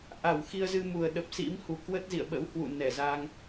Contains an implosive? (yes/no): yes